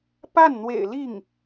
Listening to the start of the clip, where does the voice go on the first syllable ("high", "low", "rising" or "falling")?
falling